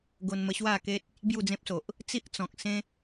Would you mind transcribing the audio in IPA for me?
ɡo˧nmə˧ɕwa˥˧ke˦t̚ | bju˥˧d͡zẽ˦p̚so˨ʔ | t͡si˦ʔt͡sɔ̃˨k̚sẽ˦

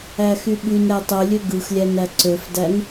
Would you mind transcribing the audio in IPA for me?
æxyɓynɾæ tˤølʲø ɡɯxlʲæ næǀøfdæn

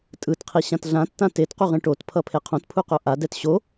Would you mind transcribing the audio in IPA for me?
tʼɯtqʰiɕãt ɮãtːã tetquʁẽ ʈotpʰʌpʰe qʰõtpʰuqo ʔadɛt ɕo

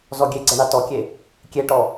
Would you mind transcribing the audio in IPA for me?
zɔɡʲeɡ͡ǀɐ ɳatɔkʲe | kʲeʈɔ

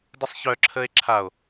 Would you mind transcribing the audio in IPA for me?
dəsˤçœ ǁʰəːe̯ǁʰao̯

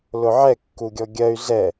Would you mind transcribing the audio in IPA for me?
lʊʕɛ kːuɡʲɔɡʲɜy̯ zɛ

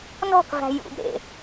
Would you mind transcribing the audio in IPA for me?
nɔ̤kvæ̤ jṵbɾḛ

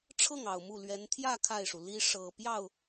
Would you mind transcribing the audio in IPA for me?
ʈ͡ʂʰɤ˥˩ŋɑ˨˩ʊ̯ mu˥˩lɥɛ˧˥n t̪ʰjä˥˧ kʰa˥˩ɪ̯ʂu˩ li˥ ʂɤ˨˩ pjɑ˥˩ʊ̯

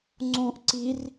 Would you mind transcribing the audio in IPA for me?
ŋ͡ǀõʔ ǀir

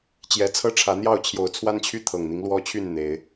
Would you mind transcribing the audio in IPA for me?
t͡ɕjɛ˨˦t͡sʰɤ˦ʈ͡ʂʰä˨˦n̪jɑ˥˨ʊ̯ t͡ɕʰjo˨˦ʊ̯t͡sʰwa˦nt͡ɕʰy˦ t̪ʰɤ˨˩ŋn̪i˦ŋlwɔ˦t͡ɕʰy˥˨n n̪e˨˦ɪ̯

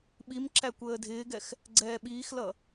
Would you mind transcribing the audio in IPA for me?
ɓimǁæ kʷəːdʱɪːɡɛx | ɡ͡ǀɛːɓiːxlʌ

